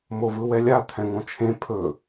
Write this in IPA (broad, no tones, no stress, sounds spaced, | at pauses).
m o v ɯ w ɛ lʲ a t̪ʰ ɛ̃ ŋ õ t͡ʃʰ ẽ pʰ ɵ